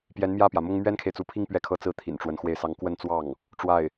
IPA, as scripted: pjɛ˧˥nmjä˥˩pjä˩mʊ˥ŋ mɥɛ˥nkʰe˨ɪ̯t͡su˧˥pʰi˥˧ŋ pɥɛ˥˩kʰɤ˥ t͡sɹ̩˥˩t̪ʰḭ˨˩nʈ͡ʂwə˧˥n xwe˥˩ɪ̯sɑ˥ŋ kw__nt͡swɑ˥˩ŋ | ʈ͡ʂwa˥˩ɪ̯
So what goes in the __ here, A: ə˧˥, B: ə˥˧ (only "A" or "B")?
B